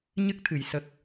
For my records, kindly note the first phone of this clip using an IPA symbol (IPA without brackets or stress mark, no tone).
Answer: ɲ